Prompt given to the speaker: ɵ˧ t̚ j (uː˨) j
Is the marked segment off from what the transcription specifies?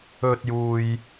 no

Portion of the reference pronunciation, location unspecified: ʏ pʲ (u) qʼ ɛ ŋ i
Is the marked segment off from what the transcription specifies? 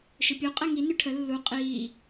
no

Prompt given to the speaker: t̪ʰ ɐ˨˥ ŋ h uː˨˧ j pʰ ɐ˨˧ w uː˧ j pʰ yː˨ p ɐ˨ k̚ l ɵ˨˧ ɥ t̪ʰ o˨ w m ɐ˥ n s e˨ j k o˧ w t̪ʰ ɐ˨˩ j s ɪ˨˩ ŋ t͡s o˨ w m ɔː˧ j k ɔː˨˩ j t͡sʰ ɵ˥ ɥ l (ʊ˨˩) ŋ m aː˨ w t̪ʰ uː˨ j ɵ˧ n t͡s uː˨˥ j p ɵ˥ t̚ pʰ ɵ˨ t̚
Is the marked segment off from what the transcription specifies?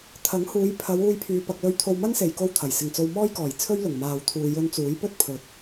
no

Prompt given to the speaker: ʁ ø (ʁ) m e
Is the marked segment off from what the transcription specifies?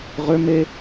yes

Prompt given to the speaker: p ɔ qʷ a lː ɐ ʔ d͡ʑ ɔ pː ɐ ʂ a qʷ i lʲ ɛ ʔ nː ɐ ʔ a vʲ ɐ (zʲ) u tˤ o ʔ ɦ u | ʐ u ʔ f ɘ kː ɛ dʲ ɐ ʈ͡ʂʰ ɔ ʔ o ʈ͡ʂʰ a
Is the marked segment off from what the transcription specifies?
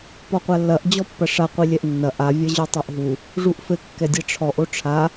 yes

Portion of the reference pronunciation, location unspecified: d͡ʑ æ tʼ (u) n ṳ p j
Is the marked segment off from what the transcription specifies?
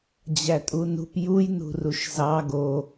no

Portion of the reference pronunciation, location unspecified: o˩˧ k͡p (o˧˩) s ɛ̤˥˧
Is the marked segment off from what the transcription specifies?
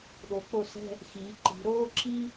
no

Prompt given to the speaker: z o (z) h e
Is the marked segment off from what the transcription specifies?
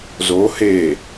yes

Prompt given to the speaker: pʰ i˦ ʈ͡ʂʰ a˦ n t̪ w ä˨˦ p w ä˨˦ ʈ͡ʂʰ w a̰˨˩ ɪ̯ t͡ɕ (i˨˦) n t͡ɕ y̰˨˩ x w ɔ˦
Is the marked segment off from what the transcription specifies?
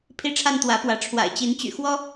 no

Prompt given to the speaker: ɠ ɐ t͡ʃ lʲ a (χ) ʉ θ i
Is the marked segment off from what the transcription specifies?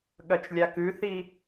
yes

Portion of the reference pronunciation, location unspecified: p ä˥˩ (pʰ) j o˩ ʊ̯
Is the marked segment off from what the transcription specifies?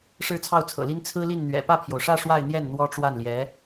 no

